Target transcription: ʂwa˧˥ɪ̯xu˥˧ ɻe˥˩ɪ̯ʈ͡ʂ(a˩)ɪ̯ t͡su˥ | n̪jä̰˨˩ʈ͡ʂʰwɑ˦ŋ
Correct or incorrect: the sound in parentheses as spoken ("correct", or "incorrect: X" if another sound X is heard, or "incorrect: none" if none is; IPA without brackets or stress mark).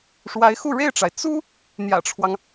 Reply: correct